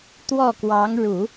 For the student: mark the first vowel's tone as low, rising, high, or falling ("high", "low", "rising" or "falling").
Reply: falling